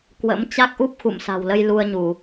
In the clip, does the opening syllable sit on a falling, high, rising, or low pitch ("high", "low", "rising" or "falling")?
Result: rising